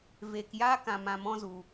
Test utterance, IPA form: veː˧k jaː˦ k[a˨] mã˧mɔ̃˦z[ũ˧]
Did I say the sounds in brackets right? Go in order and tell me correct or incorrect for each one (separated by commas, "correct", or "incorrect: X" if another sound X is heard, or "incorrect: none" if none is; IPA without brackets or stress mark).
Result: incorrect: ã˨, incorrect: u˧